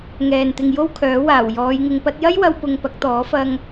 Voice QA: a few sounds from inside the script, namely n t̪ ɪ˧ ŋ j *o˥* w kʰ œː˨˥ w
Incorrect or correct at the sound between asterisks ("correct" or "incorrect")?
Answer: correct